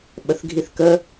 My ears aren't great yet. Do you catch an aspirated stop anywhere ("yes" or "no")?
no